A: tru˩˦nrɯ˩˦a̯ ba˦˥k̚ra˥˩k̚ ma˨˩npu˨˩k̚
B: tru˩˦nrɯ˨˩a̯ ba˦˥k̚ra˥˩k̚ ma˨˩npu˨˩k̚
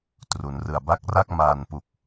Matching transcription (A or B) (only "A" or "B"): B